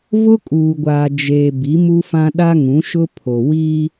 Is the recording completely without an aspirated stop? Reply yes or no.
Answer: no